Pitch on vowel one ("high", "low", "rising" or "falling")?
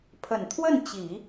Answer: low